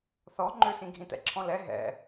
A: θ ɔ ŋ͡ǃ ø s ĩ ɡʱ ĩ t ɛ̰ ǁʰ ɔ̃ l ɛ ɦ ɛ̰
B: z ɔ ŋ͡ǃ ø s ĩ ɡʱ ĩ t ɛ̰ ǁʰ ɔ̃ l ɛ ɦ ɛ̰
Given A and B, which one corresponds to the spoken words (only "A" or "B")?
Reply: A